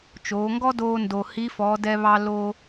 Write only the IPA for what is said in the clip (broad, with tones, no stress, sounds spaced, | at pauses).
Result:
t͡ʃ oː˩˧ ŋ ɡ ɔ˥ d oː˧ n d o˩ h i˧˥ f ɔː˩˧ d ɛ˧ β ɑ˧ l oː˧